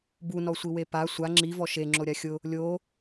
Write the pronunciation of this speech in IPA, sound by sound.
b u n ɔ sʷ i w e p a sʷ a ŋ͡ǁ i v ɔ ʃ e ŋ͡ǁ o ɾʲ a xʲ ʊ | lʲ o

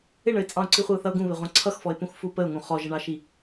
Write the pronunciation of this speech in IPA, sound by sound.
ɪ ɳ ə ɪ̯ t͡sʼ ɑ̃ ʊ̯ ǀ i χʷ ə ʊ̯ θ ʌ ʊ̯ ɡ ũ β ɪ ʁʷ ɑ̃ ǀʰ ʌ x f ɔ ɪ̯ p ũ x f u p ə ʊ̯ ŋ ũ χ ɔ ʒ ə ɳ ɑ ʃ i

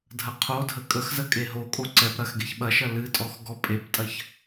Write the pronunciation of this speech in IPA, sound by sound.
dʱ ɐ qʰ o dʱ ə kʼ ə x z ə kʼ e ɦ o kʼ o ǀ ɛ p ɾ ɐ x ɡ e ç ɓ ɐ ʃ ɐ l ɨ tʼ ɔ x ɡ ɔ pʼ e p tʼ ɐ ç

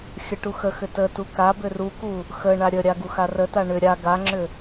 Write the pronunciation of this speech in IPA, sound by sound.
xʲ ə ʈ u x ə x ʏ t ə t u k a b ʏ r u k u | x ə ɳ a ɾʲ ə ɾʲ a ɡ u x a r ə t a ɳ ʏ ɾʲ a ɡ a ŋ͡ǁ ʏ

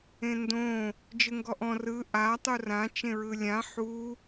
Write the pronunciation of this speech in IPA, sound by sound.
ẽ n d õ | d͡ʒ ɯ ŋ ɡ ɔ ʔ ɔ̃ r ɯ ʔ a tˤ u r ã t͡ʃ ẽ ɹ ɯ lʲ ã ħ u

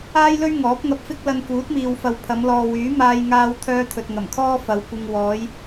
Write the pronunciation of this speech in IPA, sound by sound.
aː˥ j l ɵ˥ ɥ ŋ ɔː˨˥ p̚ ŋ ɐ˧ p̚ f ɪ˥ k̚ l ɐ˧ n k uː˨˥ t̚ m iː˨ w f ɐ˨ w pʰ ɐ˨˧ m l ɔː˨ w yː˨˥ m aː˧ j ŋ aː˧ w t̪ʰ œː˧ t̪ʰ ɵ˨ t̚ ŋ ɐ˨˩ m kʰ ɔː˥ f ɐ˨˧ w kʷ ɪ˧ ŋ w ɔː˨˧ j

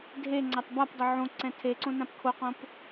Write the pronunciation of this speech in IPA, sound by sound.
dʱ e ŋ͡ǀ a tˤ b a p dˤ ʊ ʕ õ ǀ ɛ̃ tʰ e ǀ õ n ã p kʰ o q õ p

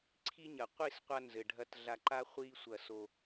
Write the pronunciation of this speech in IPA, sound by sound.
ǀʰ i˦ ɲ ɐ˨ qʷ i˦˨ s qʷ a˧ n z ɘ˨ ɖʱ ɐ˧ t ɮ a˧ ǃ a˦ χʷ i˦ sʷ ɐ˦˨ s o˧

